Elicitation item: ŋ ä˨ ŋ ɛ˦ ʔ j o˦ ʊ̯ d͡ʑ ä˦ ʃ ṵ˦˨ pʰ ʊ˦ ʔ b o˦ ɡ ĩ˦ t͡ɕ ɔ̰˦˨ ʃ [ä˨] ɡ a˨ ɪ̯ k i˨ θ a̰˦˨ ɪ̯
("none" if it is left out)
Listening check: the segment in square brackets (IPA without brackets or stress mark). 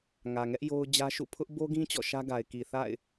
ä˦